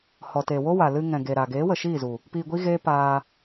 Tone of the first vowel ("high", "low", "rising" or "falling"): low